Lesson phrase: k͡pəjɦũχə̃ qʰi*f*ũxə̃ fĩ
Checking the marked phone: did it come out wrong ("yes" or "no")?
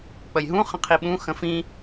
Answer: yes